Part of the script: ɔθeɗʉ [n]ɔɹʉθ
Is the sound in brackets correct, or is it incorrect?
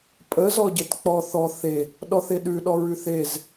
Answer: incorrect